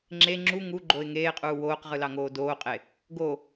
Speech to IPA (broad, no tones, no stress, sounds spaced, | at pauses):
ŋ͡ǁ e ŋ͡ǁ u ŋ u ɡ͡ǃ o ɪ̯ ŋ eː qʼ uː w oː q ʁ ɯ l ɑ ŋ oː d oː qʼ e | ɡ o